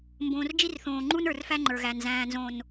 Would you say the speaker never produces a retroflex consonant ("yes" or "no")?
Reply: yes